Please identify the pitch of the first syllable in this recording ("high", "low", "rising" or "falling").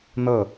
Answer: falling